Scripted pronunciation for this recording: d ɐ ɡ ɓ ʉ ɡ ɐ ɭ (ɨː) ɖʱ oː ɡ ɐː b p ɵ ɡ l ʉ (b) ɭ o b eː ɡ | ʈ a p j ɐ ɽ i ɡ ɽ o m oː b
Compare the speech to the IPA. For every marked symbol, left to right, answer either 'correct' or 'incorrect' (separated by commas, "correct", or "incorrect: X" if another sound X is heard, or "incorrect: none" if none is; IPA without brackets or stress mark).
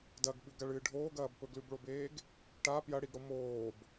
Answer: correct, correct